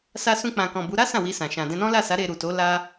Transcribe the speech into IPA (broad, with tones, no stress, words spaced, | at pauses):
sa˧sũ˧k͡pã˨kɔ̃˨ bu˨˦ ɾa˦ sã˦˨wi˧sã˨ ʃã˨dɛ̃˧nɔ̃˦ la˦˨sa˨˦ ɾe˧ɾu˨to˨˦ la˦